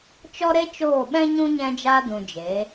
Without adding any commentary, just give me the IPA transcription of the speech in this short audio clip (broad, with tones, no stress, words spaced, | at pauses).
t͡ʃɔ˦ɾe˦ t͡ʃoː˦˨ɓɛ̃˦ɲũ˦ ɲɛ̃˧d͡ʒaː˧dũ˨ d͡ʒe˨˦